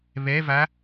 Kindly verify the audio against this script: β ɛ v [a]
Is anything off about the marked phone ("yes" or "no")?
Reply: no